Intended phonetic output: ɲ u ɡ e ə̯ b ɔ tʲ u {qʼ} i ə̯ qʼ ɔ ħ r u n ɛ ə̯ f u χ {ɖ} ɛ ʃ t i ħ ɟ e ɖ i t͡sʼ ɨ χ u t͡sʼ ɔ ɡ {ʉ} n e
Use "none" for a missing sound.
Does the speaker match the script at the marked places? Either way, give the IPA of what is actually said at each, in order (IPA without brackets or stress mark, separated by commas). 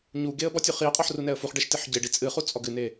χ, ɖ, ɨ